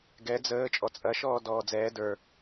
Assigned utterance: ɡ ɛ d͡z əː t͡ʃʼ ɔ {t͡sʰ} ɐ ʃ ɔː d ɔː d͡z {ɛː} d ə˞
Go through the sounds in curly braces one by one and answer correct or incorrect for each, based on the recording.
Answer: incorrect, correct

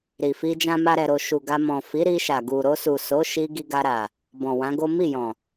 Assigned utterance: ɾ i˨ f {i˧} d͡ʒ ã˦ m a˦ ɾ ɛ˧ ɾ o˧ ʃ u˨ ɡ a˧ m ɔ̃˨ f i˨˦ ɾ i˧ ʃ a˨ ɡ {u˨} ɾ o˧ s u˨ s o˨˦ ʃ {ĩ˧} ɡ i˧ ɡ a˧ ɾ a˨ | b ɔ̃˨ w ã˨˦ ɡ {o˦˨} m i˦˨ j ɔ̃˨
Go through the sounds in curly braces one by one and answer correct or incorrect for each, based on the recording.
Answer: correct, correct, incorrect, incorrect

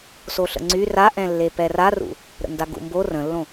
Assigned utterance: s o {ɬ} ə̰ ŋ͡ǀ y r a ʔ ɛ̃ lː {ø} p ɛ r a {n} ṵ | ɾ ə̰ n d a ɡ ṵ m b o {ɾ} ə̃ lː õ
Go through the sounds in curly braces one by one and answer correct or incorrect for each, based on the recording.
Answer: correct, incorrect, incorrect, incorrect

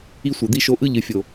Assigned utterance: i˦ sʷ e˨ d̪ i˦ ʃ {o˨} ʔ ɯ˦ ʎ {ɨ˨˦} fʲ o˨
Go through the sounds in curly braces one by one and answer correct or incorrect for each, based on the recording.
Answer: incorrect, incorrect

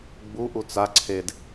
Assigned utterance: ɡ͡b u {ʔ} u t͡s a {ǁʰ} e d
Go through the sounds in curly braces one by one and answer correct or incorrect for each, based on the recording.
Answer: correct, incorrect

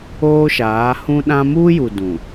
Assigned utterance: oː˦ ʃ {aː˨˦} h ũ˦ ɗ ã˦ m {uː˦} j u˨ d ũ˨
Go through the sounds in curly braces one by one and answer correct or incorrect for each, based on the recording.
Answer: correct, correct

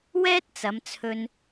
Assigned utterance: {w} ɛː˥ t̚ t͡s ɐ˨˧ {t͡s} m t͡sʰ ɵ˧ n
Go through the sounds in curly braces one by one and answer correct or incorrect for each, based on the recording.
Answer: correct, incorrect

